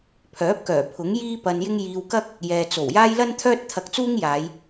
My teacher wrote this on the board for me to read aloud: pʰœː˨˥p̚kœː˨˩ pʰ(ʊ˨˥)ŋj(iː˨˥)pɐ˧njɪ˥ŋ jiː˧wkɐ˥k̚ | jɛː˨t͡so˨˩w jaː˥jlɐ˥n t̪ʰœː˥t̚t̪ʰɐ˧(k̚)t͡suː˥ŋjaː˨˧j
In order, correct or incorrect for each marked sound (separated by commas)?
correct, incorrect, correct